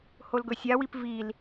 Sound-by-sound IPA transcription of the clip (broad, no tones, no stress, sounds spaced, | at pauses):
h o l ɡ ɵ sʲ a w i p v i l